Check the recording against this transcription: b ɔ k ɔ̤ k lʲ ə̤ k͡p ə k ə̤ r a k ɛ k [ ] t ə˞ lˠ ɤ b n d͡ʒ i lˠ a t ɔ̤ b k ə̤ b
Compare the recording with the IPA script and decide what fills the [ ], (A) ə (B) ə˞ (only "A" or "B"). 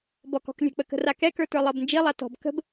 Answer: B